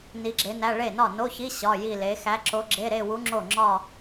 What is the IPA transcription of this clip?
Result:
n i˧˥ ɡ͡ǁ e˧˥ n æ˧˥˧ ɭ e˥˩ n ɒ˥˩ n o˧˥˧ ç i˧˥˧ ɕ ɒ˧˥˧ j i˥˧ l e˧˥ x æ˧˥ ǁ o˧˥ ɡ͡ǁ e˧˥˧ ɾ e˥˧ w u˧˥ ŋ͡ǁ o˥˩ ŋ͡ǁ ɒ˥˧

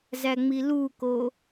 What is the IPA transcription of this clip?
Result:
z æ ŋ͡m i l u k o

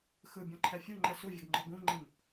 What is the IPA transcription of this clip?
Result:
x ɯ bʲ ɔ̃ ǃʰ ɛ fʲ u ŋ͡ǃ ɛ s u vʲ ɐ ɡ ŋ͡ǃ ɔ ɡ ũ ŋ͡ǃ ĩ m

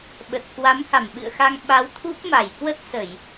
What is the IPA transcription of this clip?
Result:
ɓ ə˨˩ t̚ k w a˨˦ m h a˧˩ m ɓ ɨ̰˧˨ ə̯ x a˧ ŋ ɓ a˨˦ w t̪ʰ u˦˥ p̚ m a˧˩ j k w ə˦˥ t̚ s ə˧˩˨ j

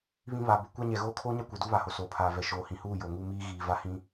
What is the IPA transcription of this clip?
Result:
β ĩ˦ β a˨ b ʊ˦ kʷ a˦ ɲ ɛ˨ ɣ oː˦ kʰ oː˦ ɲ a˦ kʷ ɛ˨ d u˦ β a˨ h o˨ s oː˨ pʰ aː˨ v ɛ˨ ʃ oː˨ h ĩ˨ h uː˦˨ j o˨ ŋ uː˦ m iː˦ ɣ iː˨ v a˦ h ĩ˦

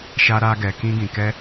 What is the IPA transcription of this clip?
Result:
ʃ a˦ ɾ a˦ ɡ ɛ˧ k ĩ˦ ɡ ĩ˧ k ɛ˦

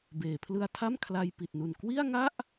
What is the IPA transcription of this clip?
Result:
b eː˩˦ pʰ l ɯ˧ a̯ tʰ a˥˩ m kʰ l a˧ j p i˨˩ t̚ n u˨˩ n k w i˥˩ a̯ ŋ a˥˩ ʔ

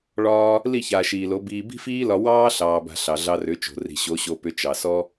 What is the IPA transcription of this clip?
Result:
ɭ ɒː˧ | l i˦˨ ç aː˨ ʃ iː˨ l o˨˦ b iː˧ b i̤˦ f iː˦ l ɒ˧ w ɑː˦ ɬ ɑː˨ b a̤˨ ɬ ɑ˨ ɮ ɑ˧ r ʏ˨˦ t͡ʃ o̤˨ r i̤˨ ɕ o˨˦ ɕ o˧ p ʏ˧ t͡ʃ ɑ˨ s ɔ˦

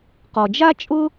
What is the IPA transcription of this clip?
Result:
q ɔ˩ d͡ʒ a˥ t͡ʃʼ ʊ˥

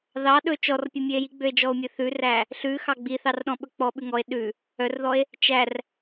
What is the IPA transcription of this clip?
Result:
ð ɑ ɗ ɵ t͡ʃ ɔ r pʲ ɔ mʲ ø e̯ j i ɡ͡b ø e̯ d͡ʒ ɔ o̯ mʲ ɵ θ ʉ r æ | ɬ ʉ x ɑ ɡ͡b i θ ɑ r ɗ ɔ̃ ɓ ɵ k͡p ɔ ɓ ʉ ŋ ɔ e̯ ɗ ʉ | œ r ð ɔ e̯ | t͡ʃ æ r

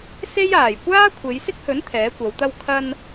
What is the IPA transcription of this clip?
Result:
s e˥ j aː˨˩ j kʷ aː˥ kʷʰ e˨˧ j s ɪ˥ k̚ h ɵ˨˥ n t̪ʰ ɛː˨˥ kʷ ɐ˨˧ w t̪ ɐ˧ w kʰ ɐ˧ n

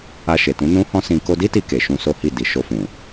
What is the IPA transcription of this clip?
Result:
a˧ ʃ e˨ t ũ˨˦ n ũ˦ h ɔ̃˦ s ĩ˧ k o˧ d i˦ t i˧ k e˨ ʃ ũ˧ s o˦ h i˦˨ d i˨ ʃ o˧ f ũ˨

